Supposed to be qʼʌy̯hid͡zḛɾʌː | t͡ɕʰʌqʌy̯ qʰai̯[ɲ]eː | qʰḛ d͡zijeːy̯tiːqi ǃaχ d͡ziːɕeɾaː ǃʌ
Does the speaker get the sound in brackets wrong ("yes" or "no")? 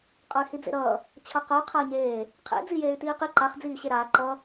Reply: no